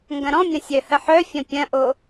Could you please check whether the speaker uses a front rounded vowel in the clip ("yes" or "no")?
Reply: yes